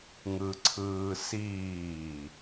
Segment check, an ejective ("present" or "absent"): absent